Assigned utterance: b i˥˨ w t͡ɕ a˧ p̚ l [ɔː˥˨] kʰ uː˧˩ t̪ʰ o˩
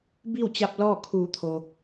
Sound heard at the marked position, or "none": ɔː˥˨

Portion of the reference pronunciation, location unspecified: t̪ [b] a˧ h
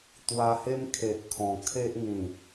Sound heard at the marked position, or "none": w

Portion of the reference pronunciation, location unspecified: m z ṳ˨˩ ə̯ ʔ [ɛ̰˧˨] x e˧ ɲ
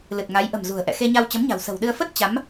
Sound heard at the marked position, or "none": ɛ̰˧˨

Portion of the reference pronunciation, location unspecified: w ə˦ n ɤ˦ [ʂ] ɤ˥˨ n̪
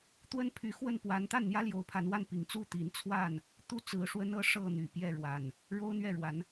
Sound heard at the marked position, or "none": ʂ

